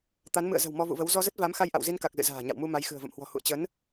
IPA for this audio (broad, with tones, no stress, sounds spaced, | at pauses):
t̪ a˨˦ n m ɨ̰˧˨ ə̯ z ə̤˨˩ w m ɔ˧ v ṵ˧˨ v ə˨˦ w z ɔ˧ z ə˦˥ t̚ v a˨˦ m x a˧ j ʔ a̰˧˨ w z i˧ n k a˨˩ k̚ z ɨ̰˧˨ z a̤ː˨˩ ɲ a̰˧˨ w m u˧ m a˨˦ j x ɨ̤˨˩ ə̯ v ə̰˧˨ m h w ɔ̤˨˩ h ṵ˧˨ ə̯ t͡ɕ ə˨˦ n